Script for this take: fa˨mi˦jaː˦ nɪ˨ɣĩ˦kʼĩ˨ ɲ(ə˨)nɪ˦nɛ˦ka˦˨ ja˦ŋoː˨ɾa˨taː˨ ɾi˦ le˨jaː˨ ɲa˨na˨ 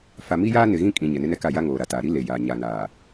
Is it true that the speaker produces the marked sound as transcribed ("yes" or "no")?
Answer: no